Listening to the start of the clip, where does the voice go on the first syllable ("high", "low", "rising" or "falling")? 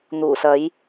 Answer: low